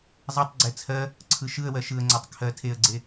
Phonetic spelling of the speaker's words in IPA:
zˤ ɛ tˤ ɡ͡ǀ ɛ t͡sʰ ɜ | ǀʰ ɯ ʃ ɯ ə̯ w ɜ ʃ ɯ ə̯ ŋ͡ǀ a tˤ kʰ ɜ tʰ e ə̯ ɡ͡ǀ e

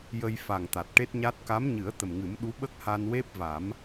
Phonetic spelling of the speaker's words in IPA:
j ə˧ j f a˨˩ ŋ t̪ a˨˩ t̚ ʈ e˦˥ t̚ ɲ a˦˥ t̚ k a˧˥ m ɲ ɨ˨˩˦ ə̯ t̪ ə˨˩ m ŋ ɨ˨˩˦ m ɗ u˧˥ ɓ ə˦˥ k̚ h a˧ n w e˦˥ p̚ v a˨˩˦ m

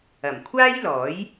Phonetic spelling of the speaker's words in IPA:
ɐ˨˩ m kʷʰ aː˥ j l ɔː˨˥ j

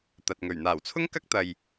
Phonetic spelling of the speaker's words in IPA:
t̪ ɐ˨ t̚ ŋ ɵ˨˩ ɥ n̪ aː˨˩ w t͡sʰ ʊ˥ ŋ k ɐ˥ k̚ t̪ ɐ˨ j

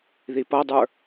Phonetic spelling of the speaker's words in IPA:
ð i p ʌ dˤ ə˞

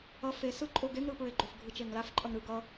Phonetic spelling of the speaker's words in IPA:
ʌ f e s ɯ ǃʼ o ɡ e ŋ ɾ ɯ p ɹ e ɡ͡ǃ o f ɡʱ ɯ t͡ʃ e ŋ l a f ǃʼ ʌ ŋ ɾ ɯ ɡ ʌ

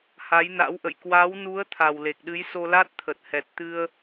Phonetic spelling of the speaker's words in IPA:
h a˨˦ j n a̰˧˥ w ʔ ə̰˧˨ j k w a˨˦ w n u˨˦ ə̯ t̪ʰ a˨˩ w l e˨˩ k̚ ɗ ɨ˨˦ j s o˧ l a˦˥ t̚ t̪ʰ ə˨˩ t̚ h ɛ˨˩ t̚ t̪ ɨ˧ ə̯

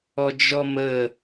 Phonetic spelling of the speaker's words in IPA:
ɔ d͡ʒ ɔ m ə

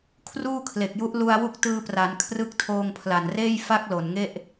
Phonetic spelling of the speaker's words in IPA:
kʰ r uː˥˩ kʰ l e˨˩ k̚ j u˦˥ ʔ l u˧ a̯ w u˦˥ k̚ t ɯː˧ p r a˩˦ n kʰ r ɯ˦˥ k̚ tʰ oː˧ ŋ pʰ l a˨˩ n r eː˥˩ j f a˥˩ k̚ l o˨˩ n ŋ e˥˩ ʔ

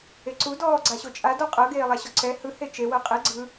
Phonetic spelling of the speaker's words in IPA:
e ǀ u d ɔː ɡ͡ǀ a ɕ o t͡ʃʼ a d ɔ qʼ ɤ ɡ eː lˠ a ɕ ɔ ǀ ɛ h ɯ h e t͡ʃ e w ɤ qʼ ɛ ɡ͡ǀ ɯ

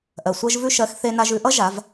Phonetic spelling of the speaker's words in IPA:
ʔ ɜ˩ sʷ ɜ˧ ʒ v ʉ˧ ʃ ɜ˩˧ x θ e˧ n a˧ ʒ ʉ˧ ʔ ʌ˥ ʒ a˩˧ v

